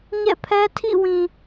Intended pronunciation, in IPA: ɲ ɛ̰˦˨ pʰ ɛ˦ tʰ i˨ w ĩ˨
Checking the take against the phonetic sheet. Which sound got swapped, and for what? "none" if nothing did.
i˨ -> ḭ˦˨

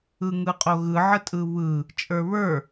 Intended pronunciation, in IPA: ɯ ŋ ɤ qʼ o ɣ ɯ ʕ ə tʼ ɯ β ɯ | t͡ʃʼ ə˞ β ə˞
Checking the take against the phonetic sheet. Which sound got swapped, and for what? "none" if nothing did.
ɤ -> ɯ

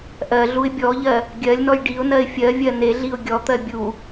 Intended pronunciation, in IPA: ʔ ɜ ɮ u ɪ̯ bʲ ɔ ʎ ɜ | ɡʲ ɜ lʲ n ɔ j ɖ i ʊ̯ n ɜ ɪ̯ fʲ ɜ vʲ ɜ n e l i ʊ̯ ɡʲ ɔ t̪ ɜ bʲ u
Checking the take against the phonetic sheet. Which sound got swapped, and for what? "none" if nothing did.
l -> ɮ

